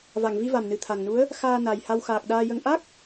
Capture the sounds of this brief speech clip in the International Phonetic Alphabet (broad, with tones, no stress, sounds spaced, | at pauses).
v a˨˩˨ ŋ v i˧ v a˨˩ m n ɨ˨˩ t̪ʰ a˨˩ ŋ n u˧˥ ə̯ | x aː˧ n a˨˩ j h a˧ w x aː˨˩ k̚ ɗ aː˧ j ə˧ ŋ ʔ a˦˥ k̚